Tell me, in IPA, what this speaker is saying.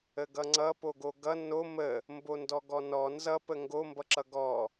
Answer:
ə ɡ ʌ ŋ͡ǀ ʌ p o ɡ o ɡ ʌ n o m ə | m b o n d ɔ ɡ ɔ n ɔ n z ʌ p ə ŋ ɡ o m b ʌ ǁ ʌ ɡ ɔ

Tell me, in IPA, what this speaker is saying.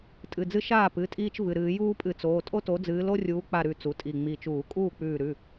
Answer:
tʼ ɨ˩˧˩ d͡z ɨ˦ ʃ aː˥˩ p ɨ˩˧˩ tʼ iː˦ t͡ʃ v ɨ˩˧˩ ɾ ɨː˧˩˧ j uː˦ pʼ ɨ˧˩˧ t͡s oː˩˧˩ tʼ o˦ t o˨˦ d͡z ɨː˨˦ l o˦ rʲ uː˨˦ k͡p a˧˩ ɾ ʉ˧˩˧ t͡s u˩˧˩ tʼ i˧˩ ŋ͡m i˧˩ t͡ʃ uː˧˩˧ kʼ uː˥˩ k͡p ʉː˧˩ ɾ ʉ˩˧˩

